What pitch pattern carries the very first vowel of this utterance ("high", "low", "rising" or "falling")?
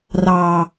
low